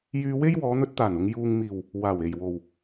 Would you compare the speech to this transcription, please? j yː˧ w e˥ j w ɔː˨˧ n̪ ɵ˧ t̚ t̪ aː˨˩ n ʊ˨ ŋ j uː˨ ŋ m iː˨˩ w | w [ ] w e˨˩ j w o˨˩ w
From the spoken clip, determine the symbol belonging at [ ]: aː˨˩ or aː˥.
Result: aː˨˩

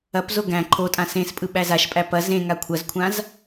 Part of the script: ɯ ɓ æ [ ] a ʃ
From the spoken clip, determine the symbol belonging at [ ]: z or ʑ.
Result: z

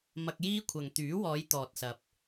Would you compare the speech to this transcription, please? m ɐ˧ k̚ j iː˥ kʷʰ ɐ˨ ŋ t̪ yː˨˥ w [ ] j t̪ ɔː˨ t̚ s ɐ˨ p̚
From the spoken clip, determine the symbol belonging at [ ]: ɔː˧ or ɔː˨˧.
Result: ɔː˨˧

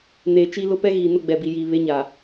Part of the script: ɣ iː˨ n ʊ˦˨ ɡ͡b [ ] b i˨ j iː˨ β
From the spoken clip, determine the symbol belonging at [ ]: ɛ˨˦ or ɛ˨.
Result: ɛ˨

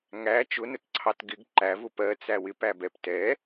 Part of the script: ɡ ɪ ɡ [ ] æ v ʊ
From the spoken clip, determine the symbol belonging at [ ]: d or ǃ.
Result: ǃ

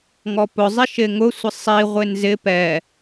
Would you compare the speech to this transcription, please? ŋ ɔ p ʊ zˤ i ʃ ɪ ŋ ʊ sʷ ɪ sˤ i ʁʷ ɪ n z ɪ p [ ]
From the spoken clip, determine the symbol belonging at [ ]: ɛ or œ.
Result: ɛ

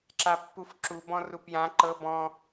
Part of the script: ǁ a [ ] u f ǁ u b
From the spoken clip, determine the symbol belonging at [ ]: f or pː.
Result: pː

